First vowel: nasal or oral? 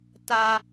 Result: oral